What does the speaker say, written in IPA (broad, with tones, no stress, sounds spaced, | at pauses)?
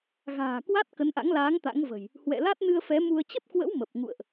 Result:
ɣ a̤ː˨˩ k w a˦˥ t̚ k ə˨˦ n ʔ a̰˧˥ ŋ l aː˨˦ ŋ t̪ a̰˧˥ ŋ v ə̤˨˩ j | h w ɛ̰˧˨ l a˦˥ t̚ n ɨ˧ ə̯ f ɛ˨˦ m u˧ ə̯ t͡ɕ ə˦˥ p̚ k w ə̰˧˥ w m ə˨˩ p̚ ŋ ṵ˧˨ ə̯ ʔ